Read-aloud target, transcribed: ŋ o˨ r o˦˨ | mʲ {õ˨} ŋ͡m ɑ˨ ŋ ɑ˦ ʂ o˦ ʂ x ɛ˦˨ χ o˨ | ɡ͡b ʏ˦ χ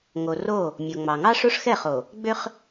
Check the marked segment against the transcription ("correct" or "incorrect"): incorrect